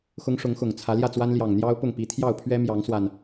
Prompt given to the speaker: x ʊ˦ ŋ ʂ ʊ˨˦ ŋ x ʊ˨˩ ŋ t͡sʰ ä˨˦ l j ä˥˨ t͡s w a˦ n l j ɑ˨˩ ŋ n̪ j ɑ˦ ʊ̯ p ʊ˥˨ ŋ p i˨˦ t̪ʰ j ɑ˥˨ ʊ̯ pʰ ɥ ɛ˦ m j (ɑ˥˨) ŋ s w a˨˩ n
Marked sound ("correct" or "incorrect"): incorrect